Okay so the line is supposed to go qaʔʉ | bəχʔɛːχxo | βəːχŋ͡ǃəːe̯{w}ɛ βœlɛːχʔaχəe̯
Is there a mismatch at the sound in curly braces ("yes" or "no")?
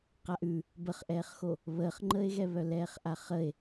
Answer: yes